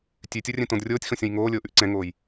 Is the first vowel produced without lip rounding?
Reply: no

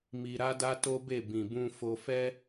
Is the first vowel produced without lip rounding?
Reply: yes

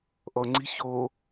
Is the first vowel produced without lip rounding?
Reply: no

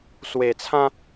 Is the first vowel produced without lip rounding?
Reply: yes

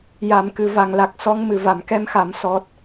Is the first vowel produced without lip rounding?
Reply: yes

